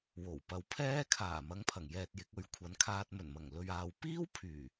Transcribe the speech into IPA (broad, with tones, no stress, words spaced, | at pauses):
wo˨˩wpɐ˨wpʰɛː˥ kʰaː˨˩ mɐ˨˧ŋpʰɐ˨˩ŋ jɛː˧t̚jɪ˨˥k̚ɵ˧ɥ kʷʰɐ˨˧nkʰaː˧t̚ mɵ˨˩nmɐ˨˩ŋ lɵ˨ɥaː˨w piː˥wpʰyː˨˩